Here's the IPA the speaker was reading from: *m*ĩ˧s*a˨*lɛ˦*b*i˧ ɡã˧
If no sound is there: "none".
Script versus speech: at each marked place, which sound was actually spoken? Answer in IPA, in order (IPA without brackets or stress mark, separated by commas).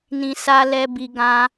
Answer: n, a˦, b